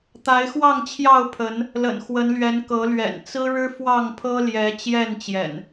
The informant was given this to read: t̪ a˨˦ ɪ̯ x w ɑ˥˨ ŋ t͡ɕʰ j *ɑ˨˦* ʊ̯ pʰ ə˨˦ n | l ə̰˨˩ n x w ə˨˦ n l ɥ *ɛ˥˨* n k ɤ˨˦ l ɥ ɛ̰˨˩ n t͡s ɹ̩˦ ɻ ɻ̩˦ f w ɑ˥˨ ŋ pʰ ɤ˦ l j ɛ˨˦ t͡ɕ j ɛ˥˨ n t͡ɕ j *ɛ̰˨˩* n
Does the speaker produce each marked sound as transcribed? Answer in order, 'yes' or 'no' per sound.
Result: no, no, yes

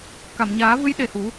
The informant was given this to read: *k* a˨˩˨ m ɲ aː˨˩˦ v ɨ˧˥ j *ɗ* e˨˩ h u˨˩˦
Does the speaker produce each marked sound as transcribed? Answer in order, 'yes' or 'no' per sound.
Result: yes, yes

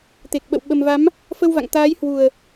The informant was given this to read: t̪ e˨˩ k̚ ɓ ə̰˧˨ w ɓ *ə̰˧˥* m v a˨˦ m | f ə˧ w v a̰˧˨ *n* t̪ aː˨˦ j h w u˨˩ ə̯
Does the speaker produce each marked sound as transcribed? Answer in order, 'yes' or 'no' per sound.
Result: no, no

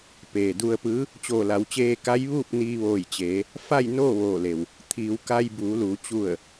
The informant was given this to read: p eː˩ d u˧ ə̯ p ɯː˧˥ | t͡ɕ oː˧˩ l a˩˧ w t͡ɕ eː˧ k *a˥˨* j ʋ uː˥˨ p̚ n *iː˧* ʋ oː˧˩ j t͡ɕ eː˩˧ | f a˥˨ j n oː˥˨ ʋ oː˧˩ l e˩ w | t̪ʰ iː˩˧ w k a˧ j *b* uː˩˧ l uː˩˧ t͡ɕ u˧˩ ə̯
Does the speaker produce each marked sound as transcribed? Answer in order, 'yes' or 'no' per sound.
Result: no, yes, yes

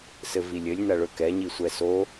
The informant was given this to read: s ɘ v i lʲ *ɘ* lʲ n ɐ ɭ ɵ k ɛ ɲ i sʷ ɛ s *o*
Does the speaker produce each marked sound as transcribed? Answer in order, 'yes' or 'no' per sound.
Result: yes, yes

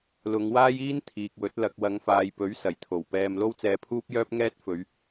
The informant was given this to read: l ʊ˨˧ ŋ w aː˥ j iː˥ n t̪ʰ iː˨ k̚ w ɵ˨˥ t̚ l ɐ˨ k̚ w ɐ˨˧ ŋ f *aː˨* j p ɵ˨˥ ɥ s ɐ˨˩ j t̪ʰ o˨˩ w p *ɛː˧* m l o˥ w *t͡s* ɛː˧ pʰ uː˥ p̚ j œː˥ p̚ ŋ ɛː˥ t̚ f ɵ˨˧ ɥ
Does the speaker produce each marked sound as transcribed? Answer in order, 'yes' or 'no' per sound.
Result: yes, yes, yes

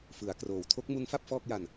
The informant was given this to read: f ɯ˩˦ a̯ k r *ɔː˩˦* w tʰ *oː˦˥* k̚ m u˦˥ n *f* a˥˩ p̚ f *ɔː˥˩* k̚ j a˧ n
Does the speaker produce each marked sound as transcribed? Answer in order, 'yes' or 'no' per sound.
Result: no, no, yes, yes

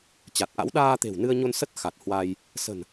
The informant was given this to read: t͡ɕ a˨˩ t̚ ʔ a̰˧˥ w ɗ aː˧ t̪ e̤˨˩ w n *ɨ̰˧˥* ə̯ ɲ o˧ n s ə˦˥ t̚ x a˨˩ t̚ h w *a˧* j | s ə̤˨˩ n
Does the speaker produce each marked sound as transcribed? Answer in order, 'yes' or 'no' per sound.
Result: no, yes

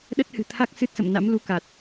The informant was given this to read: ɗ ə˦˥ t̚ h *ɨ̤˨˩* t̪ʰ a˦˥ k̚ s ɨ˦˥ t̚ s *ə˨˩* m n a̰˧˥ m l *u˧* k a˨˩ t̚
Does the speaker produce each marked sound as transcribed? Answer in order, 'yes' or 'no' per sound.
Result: yes, no, yes

